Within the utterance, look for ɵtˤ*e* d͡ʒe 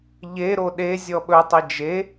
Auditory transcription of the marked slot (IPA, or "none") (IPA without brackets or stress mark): e